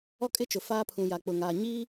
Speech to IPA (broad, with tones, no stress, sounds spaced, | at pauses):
ɔ˦ kʼ ɪ˦ t͡ʃ ʊ˨ f aː˦ pʰ ũ˨ j a˨ k͡p ʊ˨ ŋ aː˨ ɲ iː˦